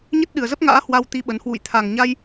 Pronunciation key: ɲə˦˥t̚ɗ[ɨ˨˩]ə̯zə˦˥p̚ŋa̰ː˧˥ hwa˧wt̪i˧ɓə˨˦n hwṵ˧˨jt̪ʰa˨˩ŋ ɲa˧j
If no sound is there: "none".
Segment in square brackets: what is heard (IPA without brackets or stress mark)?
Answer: ɨ˨˩